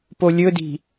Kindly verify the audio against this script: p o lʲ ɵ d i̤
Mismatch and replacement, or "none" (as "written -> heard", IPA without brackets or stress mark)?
none